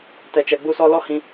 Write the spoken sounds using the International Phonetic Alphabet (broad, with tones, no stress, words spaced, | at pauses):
tɛ˨t͡ʃɛ˨ɡ͡bu˧sɔ˧ lɔ˦hĩ˧